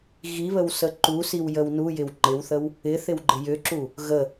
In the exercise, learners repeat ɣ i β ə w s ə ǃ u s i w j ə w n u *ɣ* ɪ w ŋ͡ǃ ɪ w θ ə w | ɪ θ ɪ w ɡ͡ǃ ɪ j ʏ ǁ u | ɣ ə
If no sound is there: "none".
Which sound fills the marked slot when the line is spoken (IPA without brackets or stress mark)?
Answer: j